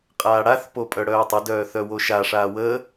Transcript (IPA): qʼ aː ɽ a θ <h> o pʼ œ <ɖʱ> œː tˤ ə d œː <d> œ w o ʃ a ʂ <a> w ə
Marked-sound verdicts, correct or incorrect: incorrect: p, incorrect: ɽ, incorrect: θ, incorrect: aː

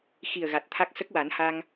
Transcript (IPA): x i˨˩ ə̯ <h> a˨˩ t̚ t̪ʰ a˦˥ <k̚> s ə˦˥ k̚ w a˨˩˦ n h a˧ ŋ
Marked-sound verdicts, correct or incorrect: incorrect: ɣ, correct

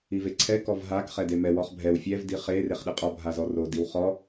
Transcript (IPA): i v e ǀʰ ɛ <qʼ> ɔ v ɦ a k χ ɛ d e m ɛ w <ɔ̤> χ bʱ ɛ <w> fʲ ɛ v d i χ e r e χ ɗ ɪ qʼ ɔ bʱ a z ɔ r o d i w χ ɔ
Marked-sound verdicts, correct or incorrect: incorrect: k, incorrect: ɔ, correct

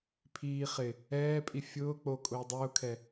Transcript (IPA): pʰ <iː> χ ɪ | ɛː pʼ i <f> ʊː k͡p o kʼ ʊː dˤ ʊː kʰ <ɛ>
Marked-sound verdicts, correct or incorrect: correct, incorrect: fʲ, correct

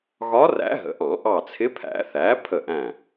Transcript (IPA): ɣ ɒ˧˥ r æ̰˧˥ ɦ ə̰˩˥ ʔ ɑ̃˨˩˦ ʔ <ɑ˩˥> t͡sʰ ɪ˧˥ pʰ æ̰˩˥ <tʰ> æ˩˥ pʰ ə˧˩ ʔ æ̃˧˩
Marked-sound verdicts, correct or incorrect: incorrect: ɑ˧˩, incorrect: θ

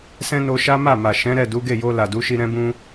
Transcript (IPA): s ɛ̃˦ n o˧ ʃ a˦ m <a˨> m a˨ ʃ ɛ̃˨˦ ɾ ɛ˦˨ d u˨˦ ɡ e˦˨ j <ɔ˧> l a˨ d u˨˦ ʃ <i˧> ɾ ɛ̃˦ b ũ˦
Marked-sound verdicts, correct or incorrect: incorrect: a˦˨, incorrect: o˧, correct

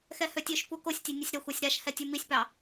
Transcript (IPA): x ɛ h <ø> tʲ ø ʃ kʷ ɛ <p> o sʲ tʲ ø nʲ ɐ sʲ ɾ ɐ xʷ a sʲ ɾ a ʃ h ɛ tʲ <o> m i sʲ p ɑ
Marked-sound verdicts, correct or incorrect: correct, incorrect: k, incorrect: u

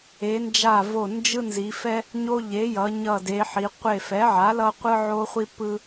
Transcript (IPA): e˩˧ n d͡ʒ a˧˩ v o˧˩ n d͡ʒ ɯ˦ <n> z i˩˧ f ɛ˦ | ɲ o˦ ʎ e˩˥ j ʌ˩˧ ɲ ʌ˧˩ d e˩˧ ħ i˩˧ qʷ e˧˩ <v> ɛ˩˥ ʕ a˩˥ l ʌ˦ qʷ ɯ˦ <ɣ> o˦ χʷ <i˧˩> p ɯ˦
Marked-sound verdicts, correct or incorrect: correct, incorrect: f, incorrect: ʕ, incorrect: i˦

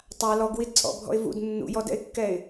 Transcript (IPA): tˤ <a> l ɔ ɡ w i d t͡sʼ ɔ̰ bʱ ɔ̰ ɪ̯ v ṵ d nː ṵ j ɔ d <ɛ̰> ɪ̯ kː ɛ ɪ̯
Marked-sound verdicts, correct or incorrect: correct, correct

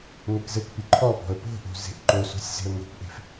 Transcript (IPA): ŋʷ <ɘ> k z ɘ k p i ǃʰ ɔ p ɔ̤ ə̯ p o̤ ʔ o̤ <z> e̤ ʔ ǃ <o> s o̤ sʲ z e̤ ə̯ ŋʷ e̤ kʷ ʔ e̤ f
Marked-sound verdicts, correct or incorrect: incorrect: e, correct, correct

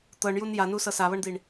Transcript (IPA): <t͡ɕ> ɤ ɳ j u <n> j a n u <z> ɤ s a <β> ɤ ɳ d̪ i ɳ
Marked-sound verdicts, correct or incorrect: incorrect: t̪, correct, incorrect: s, correct

